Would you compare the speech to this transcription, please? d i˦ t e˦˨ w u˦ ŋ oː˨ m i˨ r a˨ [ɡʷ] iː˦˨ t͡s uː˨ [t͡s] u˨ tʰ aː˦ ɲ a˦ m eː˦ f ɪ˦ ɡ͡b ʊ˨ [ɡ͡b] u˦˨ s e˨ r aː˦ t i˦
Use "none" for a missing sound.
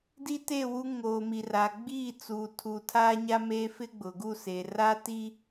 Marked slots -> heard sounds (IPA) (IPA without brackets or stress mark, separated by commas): ɡ͡b, tʰ, ɡ